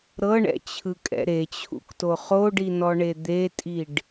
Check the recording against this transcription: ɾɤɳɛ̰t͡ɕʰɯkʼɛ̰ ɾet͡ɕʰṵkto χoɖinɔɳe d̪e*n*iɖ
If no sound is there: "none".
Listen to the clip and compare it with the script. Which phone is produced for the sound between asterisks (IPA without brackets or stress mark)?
tʼ